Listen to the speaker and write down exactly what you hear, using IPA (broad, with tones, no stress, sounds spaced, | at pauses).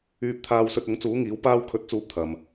yː˧ p̚ t̪ʰ aː˧ w s ɵ˧ t̚ ʊ˨˥ ŋ t͡s uː˨˥ ŋ iː˨˥ w p aː˧ w kʰ ɵ˨˥ t̚ t͡s uː˨˥ p̚ t̪ʰ ɐ˨ m